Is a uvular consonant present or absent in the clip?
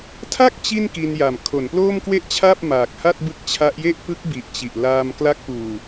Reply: absent